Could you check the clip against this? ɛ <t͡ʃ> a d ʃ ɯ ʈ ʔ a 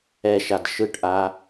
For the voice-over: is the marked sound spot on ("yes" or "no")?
no